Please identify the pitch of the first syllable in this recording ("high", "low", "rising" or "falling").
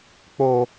low